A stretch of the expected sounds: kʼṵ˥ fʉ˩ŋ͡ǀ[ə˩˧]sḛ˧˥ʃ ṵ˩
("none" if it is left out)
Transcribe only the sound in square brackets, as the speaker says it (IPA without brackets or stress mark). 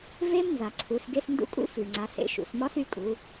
a˩˧